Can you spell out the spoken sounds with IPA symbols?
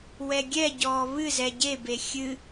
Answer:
wɛɡʲɛɟɔː βɨ zɛɟebe xʲɨ

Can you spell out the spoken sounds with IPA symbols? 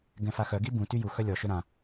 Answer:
ɡɛ̃faxœɡi bũ tyjuxœ lʲɔʃø ɾã

